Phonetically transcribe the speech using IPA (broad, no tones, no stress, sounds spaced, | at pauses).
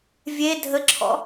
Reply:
vʲ e dʱ ə ǁʰ ɔ̰